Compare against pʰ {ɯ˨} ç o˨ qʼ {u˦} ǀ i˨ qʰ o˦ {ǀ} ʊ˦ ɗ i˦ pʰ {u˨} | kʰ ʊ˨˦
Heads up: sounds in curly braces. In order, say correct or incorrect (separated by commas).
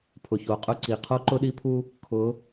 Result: incorrect, incorrect, incorrect, incorrect